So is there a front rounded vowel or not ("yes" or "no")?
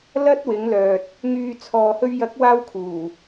yes